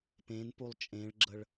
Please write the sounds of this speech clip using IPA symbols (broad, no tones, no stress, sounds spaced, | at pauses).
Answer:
p ẽ n p u lˠ t͡ʃʼ ẽ ɭ ɡ͡ǁ ə ɭ